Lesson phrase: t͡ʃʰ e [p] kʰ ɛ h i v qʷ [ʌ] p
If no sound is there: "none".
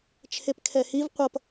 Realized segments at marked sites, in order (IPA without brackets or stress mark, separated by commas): p, ʌ